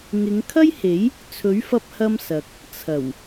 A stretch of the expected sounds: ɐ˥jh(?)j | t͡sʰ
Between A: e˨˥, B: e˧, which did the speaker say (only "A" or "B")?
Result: A